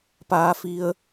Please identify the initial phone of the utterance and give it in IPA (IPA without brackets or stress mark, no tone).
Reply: p